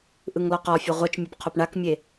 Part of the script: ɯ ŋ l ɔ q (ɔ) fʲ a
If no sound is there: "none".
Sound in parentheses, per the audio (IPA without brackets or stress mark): ɔ